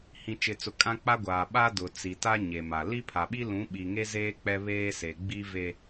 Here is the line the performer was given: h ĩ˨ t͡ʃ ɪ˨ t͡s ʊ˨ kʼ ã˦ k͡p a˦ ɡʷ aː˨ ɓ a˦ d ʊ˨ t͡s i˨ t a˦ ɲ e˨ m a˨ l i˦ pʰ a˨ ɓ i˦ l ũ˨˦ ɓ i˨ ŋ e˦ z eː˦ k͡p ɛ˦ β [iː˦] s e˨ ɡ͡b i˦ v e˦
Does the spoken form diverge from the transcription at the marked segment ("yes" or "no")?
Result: yes